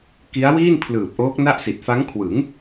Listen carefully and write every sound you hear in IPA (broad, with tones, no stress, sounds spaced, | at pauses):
k i˦˥ a̯ w iː˥˩ n pʰ l ɯː˨˩ p̚ ʔ oː˦˥ k̚ n a˥˩ ʔ s i˨˩ t̚ f a˦˥ ŋ kʰ w ɯ˩˦ ŋ